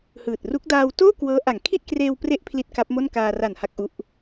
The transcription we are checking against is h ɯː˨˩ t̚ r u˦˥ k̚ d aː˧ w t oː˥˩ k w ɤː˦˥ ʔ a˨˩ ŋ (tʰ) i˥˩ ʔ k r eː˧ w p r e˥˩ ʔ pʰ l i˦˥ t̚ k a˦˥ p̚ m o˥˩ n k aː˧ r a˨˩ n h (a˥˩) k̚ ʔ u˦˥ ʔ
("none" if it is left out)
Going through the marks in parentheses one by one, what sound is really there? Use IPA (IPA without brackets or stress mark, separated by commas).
kʰ, a˦˥